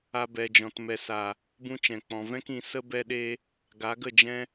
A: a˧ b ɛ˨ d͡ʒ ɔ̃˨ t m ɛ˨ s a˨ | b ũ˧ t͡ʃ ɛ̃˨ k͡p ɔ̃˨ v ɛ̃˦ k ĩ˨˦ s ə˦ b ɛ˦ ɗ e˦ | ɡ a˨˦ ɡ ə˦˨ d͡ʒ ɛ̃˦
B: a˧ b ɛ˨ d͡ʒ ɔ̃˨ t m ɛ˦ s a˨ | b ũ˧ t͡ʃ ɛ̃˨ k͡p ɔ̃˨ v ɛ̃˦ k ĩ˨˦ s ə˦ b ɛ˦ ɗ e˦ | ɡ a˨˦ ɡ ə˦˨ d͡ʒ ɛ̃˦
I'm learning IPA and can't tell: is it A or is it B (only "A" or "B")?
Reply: A